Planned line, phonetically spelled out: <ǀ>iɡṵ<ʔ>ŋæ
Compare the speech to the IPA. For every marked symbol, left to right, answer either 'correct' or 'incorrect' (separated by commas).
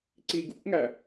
correct, correct